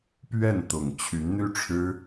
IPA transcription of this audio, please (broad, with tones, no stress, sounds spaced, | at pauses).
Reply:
p ɥ ɛ˥˩ n t̪ ʊ˨˩ ŋ t͡ɕʰ y˧˥ n n̪ y˥ ʈ͡ʂʰ ɻ̩˥